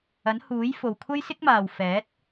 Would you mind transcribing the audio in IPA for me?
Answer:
ɐ˨˥ n h uː˨˥ j f o˨ w kʷʰ ɐ˥ j s ɪ˥ k̚ m aː˨ w f ɛː˨˥ t̚

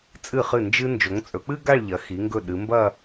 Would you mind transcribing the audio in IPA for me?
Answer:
t͡sʼ ɨ˧˩ χ ɨ˧˩ n d͡ʒ ɨ˧ n d͡ʒ o˩˧ ŋ t͡sʼ ɵ˩˧ k͡p ɨ˥ ɡ a˥˧ ɭ ʎ ɐ˩˧ x i˩˧ ŋ ɡ ɵ˧˩ ɗ ɨ˩˧ m b ɐ˥˧

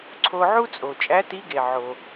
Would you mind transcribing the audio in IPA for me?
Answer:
ǀʰ o˧ ʕ u˥ t͡sʼ o˩ t͡ʃʼ æ˧˥ t i˧˥ ɡ e˩ ʕ o˩

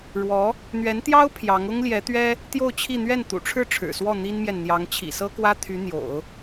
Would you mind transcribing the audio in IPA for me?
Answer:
ɻ w ɔ˧˥ | n̪ ɥ ɛ˧˥ n t̪ j ɑ˥ ʊ̯ pʰ j ɑ˧˥ ŋ ʊ˥ ŋ l j ɛ˧˥ t̪ ɥ ɛ˥ | t̪ j o˥˧ ʊ̯ t͡ɕʰ i˥˧ n̪ ɥ ɛ˥˩ n t̪ ṵ˨˩ ʈ͡ʂʰ ɻ̩˥˩ ʈ͡ʂʰ ɻ̩˨˩ s w ɔ˥˩ n̪ i˥ n m j ɛ˨ n n̪ j ɑ˧˥ ŋ t͡ɕʰ ḭ˨˩ s ɤ˥ k w ä˥ t̪ʰ y˧˥ n̪ j o̰˨˩˦ ʊ̯

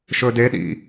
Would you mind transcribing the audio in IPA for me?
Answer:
ʃ ɵ d e ɗ ḭ

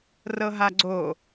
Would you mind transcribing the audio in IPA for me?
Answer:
r ɤ ɦ a ɡ͡ǀ o

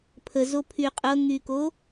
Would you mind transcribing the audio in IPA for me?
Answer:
pʰ ə z o pʰ y qʼ ɤ ŋ y k o

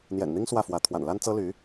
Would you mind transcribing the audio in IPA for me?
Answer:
n̪ j ɛ̰˨˩ n n̪ i˥ ŋ s w ä˥˩ f w ä˧˥ t̪ʰ w a̰˨˩ n l a˥ n t͡s ɤ˥ l y˧˥

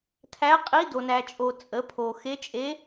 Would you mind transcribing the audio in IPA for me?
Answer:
tʰ æ˧˥ qʼ i˧˥ d o˨ n æ˨ t͡ʃʼ o˨ t͡sʼ ə˩˥ pʰ o˨ x e˧˥ t͡ʃʼ e˧˥

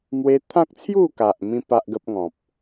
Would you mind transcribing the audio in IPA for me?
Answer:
m w e˦ t̪ʰ ã˦ k̚ t͡sʰ j u˥˧ k a˨ ʔ m ĩ˧ p a˦ ʔ ɡ ə˦ p̚ ŋ ɔ̃˨ p̚

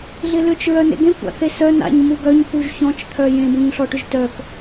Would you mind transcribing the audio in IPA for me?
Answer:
ɮ ɪ l ʏ t͡ʃ ɹ œ n ḛ ɡ ẽ kʷ a̰ θ e s œ n a̰ ɲ m u ɡ œ ɲ k u ʒ ç ɔ̃ t͡ʃ t̪ʰ œ j ẽ b ũ ɲ ɬ ɔ ʈ ʏ ʒ t œ k

